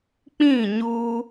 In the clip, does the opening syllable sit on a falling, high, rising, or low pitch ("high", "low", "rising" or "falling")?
falling